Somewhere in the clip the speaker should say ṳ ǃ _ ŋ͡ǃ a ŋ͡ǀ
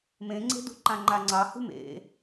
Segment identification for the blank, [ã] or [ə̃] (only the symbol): ã